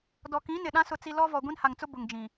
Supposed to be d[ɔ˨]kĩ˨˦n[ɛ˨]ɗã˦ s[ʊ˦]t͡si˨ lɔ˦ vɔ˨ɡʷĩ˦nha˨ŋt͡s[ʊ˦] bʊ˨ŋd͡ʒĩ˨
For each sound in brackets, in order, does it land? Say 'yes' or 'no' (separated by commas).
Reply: yes, no, no, yes